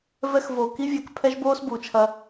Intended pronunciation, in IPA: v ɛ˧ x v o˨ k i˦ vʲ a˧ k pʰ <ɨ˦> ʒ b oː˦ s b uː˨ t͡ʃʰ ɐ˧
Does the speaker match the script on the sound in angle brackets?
no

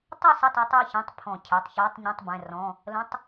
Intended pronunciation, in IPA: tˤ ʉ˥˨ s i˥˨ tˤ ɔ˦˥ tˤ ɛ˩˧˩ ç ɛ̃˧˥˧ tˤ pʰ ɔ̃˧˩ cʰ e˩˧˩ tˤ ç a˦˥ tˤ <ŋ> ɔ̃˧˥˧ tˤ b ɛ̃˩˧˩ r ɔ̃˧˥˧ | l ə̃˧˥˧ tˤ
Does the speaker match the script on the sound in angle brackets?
no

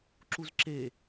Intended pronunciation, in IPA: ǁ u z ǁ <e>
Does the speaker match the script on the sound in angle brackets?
yes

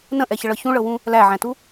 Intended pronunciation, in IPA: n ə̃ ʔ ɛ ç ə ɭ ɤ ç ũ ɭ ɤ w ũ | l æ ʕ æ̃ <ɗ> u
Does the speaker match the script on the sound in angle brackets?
no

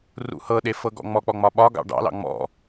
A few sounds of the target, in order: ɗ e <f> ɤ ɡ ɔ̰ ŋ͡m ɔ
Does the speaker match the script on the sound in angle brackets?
yes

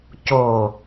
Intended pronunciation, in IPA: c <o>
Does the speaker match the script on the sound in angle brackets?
yes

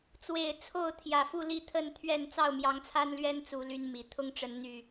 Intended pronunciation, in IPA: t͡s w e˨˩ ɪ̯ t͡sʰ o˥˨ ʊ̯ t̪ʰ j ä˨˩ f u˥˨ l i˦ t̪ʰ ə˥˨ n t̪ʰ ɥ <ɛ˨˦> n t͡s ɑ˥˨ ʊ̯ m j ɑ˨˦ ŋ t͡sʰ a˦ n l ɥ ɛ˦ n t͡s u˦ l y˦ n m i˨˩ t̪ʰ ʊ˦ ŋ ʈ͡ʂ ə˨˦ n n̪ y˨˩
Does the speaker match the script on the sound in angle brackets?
no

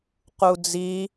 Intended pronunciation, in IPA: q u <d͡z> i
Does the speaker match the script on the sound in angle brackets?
yes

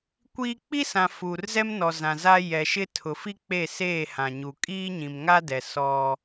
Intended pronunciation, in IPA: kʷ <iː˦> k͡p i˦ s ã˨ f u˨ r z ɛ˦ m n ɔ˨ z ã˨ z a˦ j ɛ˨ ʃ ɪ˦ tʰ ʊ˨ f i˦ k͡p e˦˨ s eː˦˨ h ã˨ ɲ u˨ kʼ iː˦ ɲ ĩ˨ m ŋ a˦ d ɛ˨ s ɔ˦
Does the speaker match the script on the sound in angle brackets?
yes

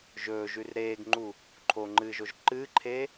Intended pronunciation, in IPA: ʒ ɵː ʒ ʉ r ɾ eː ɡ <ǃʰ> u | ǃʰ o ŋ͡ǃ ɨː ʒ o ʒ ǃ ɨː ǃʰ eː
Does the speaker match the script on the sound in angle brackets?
no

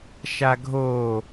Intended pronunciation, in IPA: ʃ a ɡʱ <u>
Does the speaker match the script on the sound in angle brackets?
no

